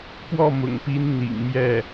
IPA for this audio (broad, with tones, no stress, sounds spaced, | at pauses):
p w ɔ˥˩ m ʊ̰˨˩ ŋ p i˧˥ n n̪ ḭ˨˩ ŋ m j ɛ˥˩